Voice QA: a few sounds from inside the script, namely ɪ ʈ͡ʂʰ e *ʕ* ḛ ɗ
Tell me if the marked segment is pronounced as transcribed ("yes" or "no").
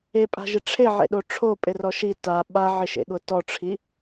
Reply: yes